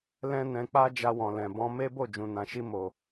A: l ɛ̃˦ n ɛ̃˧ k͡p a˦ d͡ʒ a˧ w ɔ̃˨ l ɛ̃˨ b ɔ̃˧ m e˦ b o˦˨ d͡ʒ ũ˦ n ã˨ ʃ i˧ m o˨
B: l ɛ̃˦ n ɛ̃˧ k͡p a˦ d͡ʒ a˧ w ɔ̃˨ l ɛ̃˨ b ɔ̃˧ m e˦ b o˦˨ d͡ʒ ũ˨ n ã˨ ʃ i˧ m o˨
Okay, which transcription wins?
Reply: B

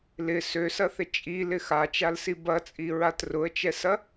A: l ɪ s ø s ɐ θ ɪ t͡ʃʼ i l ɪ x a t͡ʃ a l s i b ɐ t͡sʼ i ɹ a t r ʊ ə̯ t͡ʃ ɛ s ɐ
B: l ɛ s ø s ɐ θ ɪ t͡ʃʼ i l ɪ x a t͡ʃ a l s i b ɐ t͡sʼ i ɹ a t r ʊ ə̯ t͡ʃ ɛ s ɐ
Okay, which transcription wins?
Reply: A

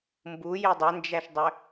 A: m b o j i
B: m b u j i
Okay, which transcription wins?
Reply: B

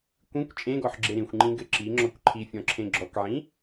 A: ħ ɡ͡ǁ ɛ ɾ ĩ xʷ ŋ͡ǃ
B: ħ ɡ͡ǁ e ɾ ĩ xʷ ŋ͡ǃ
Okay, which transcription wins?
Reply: B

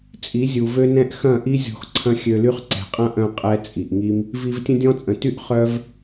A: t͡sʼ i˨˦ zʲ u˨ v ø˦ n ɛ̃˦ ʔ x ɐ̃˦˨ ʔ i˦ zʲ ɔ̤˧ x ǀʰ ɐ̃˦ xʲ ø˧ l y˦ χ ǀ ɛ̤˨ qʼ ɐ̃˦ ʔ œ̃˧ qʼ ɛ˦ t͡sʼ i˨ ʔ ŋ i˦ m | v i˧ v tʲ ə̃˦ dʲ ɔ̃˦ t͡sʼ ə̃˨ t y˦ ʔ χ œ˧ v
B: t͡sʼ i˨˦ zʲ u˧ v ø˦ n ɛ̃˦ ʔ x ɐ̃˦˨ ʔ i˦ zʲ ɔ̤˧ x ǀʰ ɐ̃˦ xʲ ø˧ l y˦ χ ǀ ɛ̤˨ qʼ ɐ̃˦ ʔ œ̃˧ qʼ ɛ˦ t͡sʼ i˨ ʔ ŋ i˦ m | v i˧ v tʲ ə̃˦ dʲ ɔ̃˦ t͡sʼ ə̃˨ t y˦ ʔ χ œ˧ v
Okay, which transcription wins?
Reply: A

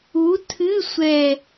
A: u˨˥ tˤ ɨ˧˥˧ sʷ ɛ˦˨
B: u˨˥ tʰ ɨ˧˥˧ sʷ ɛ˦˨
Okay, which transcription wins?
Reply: B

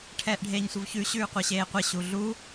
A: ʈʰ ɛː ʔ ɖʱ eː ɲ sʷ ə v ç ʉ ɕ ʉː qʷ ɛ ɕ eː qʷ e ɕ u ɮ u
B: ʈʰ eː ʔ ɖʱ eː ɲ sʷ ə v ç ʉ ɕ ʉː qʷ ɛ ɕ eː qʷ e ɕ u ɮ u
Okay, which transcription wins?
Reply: A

